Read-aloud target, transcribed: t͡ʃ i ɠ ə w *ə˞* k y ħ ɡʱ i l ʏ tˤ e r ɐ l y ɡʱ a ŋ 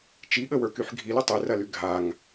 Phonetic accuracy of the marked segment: correct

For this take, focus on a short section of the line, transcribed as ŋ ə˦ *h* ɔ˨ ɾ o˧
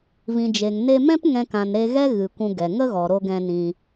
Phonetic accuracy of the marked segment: incorrect: ɣ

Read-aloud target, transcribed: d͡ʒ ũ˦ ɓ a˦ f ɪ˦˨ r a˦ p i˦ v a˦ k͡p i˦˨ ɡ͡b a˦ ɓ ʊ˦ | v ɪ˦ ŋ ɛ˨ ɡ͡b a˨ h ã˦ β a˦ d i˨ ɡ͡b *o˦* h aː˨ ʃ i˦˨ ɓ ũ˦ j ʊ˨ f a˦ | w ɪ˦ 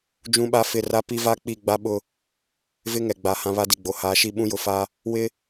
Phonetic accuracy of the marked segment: incorrect: o˨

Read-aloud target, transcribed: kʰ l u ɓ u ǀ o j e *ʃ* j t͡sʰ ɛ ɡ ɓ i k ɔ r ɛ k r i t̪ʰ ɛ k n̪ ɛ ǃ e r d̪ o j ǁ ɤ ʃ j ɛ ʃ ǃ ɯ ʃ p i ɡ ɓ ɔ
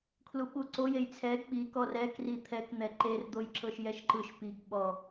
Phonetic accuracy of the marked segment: incorrect: none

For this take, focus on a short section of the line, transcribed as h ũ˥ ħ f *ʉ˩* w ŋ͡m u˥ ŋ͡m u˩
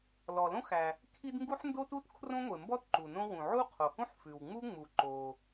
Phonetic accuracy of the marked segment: correct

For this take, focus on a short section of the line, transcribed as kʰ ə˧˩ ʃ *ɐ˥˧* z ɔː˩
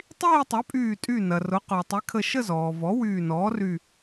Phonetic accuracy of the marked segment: incorrect: ə˥˧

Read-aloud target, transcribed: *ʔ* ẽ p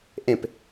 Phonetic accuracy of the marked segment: correct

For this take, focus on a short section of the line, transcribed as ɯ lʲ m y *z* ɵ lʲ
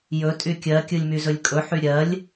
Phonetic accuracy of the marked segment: correct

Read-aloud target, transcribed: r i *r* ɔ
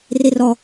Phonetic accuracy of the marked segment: correct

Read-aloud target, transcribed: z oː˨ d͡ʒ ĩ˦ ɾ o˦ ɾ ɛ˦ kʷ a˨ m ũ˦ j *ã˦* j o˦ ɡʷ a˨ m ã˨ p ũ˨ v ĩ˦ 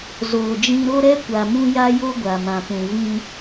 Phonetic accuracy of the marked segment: incorrect: a˦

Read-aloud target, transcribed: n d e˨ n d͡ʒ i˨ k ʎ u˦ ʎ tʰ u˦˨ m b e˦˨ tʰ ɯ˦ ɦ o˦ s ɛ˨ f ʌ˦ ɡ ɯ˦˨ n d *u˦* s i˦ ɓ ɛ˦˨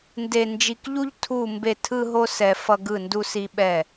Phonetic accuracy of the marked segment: correct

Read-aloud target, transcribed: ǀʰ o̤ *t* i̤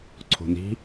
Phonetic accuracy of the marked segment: incorrect: n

